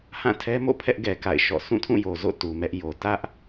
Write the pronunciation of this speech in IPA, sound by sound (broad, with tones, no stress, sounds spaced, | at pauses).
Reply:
h ã˦˨ tʰ ɛ˦ m o̰˦˨ pʰ ɛ˦ ʔ ɡ ɛ˨ k a̰˦˨ ɪ̯ ʃ ɔ̰˦˨ s ũ˦˨ tʰ ũ˦˨ j o˨ z o̰˦˨ t u˨ m ɛ˦ ʔ j o˨ t ä˦ ʔ